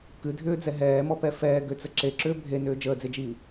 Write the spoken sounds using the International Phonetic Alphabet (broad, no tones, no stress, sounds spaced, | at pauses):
k ɨ dʱ ʏː d͡z ɛ ɦ ɛː m ɔ p ɛ f ɛː ɡ ʏ t͡s ə ǁ e ǁ ʏː bʱ e n ʏː d͡ʒ əː d͡z e d͡ʒ iː